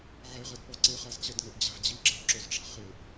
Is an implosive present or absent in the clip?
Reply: absent